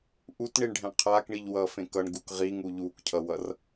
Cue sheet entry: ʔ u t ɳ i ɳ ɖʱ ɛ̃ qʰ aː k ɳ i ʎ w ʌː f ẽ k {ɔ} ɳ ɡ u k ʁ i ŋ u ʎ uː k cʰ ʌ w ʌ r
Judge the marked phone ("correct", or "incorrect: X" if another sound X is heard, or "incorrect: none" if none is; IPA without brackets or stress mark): incorrect: ʌ